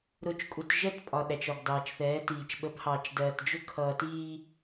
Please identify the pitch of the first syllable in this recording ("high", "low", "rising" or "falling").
low